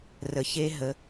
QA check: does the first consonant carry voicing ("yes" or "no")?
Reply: yes